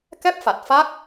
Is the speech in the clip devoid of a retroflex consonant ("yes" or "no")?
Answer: yes